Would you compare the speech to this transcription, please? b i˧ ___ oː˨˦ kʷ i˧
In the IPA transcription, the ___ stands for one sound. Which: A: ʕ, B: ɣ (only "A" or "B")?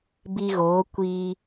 B